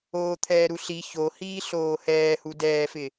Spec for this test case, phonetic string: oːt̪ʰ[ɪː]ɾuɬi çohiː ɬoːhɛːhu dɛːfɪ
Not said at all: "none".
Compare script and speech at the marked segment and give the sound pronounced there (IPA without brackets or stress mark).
ɛː